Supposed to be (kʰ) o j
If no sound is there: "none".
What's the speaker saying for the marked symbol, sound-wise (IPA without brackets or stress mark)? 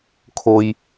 kʰ